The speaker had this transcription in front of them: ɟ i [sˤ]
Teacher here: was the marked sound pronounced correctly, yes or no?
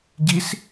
no